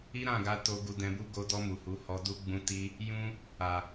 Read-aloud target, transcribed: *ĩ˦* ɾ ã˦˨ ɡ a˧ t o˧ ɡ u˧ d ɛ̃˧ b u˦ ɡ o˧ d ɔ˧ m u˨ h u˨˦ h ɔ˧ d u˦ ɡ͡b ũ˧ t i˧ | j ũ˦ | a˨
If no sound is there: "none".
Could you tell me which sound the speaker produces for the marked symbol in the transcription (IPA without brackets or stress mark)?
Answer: i˦